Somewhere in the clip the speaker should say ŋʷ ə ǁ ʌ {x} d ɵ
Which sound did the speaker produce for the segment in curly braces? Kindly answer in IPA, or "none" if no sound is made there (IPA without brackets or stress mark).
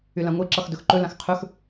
x